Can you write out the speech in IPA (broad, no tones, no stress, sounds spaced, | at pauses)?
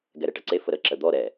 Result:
ɡ ɛ ɾ ɛ ʈ ɐ ǀ e f ə ɾ ə ǁ ə d̪ ɔ ɾ ɛ